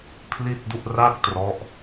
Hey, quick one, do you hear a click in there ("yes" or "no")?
no